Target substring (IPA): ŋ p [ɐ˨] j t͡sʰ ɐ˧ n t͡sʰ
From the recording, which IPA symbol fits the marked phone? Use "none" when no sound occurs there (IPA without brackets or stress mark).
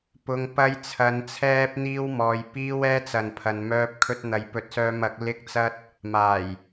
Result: ɐ˥